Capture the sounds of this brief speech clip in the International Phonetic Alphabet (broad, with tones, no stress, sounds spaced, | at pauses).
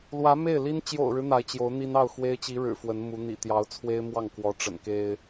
l w ä˧˥ m e˥˩ ɪ̯ l i˥ n t͡ɕ j o̰˨˩ ʊ̯ ɻ ɻ̩˦ n̪ a˧˥ ɪ̯ t͡ɕ j o˧˥ ʊ̯ n̪ i˥ n ɑ˥˩ ʊ̯ x w e˥ ɪ̯ t͡ɕ i˧˥ ɻ ɻ̩˨˩ f w ə˧˥ n m u˧˥ n̪ ḭ˨˩ t̪ j ɑ˧˥ ʊ̯ t͡sʰ w e˥ ɪ̯ m w ɑ˥˩ ŋ k w ɔ˧˥ ʈ͡ʂ ə̰˨˩ n k e˥ ɪ̯